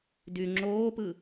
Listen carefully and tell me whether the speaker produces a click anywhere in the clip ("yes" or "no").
yes